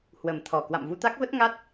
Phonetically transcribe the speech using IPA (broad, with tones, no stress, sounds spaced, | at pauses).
h w ə˨˩ m t̪ʰ ɔ˨˩ k w a̰˧˨ m v u˧ t̪ a˦˥ k̚ v ə˦˥ t̚ ŋ a˦˥ t̚